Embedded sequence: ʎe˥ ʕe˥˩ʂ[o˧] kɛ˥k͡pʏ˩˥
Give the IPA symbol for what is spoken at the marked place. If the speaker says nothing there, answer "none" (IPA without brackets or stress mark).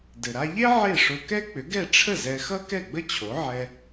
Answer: o˧